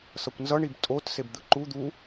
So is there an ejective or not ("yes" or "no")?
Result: yes